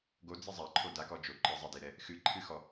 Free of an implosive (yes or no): yes